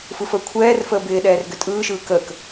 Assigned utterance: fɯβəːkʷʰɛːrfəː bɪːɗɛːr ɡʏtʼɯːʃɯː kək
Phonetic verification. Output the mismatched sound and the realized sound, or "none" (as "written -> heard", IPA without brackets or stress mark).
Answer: β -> f